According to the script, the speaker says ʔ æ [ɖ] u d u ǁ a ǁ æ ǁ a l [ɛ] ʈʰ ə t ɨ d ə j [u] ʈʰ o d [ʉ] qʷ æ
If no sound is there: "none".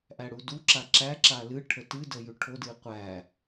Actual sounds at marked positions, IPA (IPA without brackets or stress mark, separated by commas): ɽ, ɨ, ʉ, ɨ